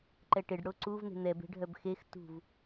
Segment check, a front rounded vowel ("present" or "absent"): present